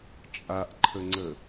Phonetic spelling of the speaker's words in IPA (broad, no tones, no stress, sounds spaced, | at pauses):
t͡ʃʼ a ʔ ǃʰ ə ŋ͡ǀ ə